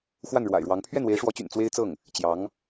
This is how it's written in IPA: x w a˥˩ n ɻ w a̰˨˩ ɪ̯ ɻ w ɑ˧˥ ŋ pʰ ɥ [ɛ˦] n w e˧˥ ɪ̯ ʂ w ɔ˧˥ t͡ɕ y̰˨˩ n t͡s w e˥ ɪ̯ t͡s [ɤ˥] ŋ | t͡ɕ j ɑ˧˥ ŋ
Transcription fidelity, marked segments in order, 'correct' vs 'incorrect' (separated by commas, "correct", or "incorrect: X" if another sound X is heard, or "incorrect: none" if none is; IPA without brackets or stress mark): incorrect: ɛ˥˩, incorrect: ɤ˥˩